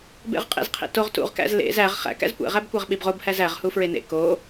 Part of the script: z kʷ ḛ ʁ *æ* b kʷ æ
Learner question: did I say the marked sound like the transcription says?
yes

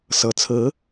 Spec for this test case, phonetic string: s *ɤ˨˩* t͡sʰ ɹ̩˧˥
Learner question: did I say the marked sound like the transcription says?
yes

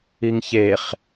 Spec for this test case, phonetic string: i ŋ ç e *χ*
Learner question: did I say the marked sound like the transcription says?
yes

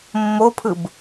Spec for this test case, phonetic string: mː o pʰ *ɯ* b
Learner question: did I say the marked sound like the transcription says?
yes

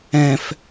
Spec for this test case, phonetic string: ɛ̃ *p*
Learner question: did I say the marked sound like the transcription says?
no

